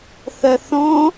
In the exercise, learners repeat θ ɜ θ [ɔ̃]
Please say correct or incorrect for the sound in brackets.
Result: correct